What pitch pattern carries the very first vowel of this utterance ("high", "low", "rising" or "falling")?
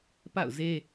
falling